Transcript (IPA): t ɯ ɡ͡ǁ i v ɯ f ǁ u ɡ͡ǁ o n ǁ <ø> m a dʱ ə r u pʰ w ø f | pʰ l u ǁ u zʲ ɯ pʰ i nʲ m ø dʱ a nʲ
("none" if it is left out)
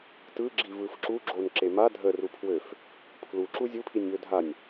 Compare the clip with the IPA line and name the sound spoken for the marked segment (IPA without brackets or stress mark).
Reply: e